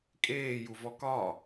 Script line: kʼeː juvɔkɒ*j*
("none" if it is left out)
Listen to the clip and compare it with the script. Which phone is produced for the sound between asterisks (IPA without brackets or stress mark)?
none